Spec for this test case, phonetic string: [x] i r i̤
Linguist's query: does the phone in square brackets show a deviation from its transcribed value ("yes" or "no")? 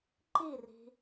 yes